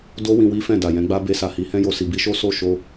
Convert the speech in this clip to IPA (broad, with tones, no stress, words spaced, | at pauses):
do˦ wĩ˧wi˦fɛ̃˦˨ da˨jɛ̃˨˦ɡ͡ba˦ be˧sa˨hi˨˦ hɛ̃˦jo˧ si˨bi˧ʃo˦ so˦˨ʃo˧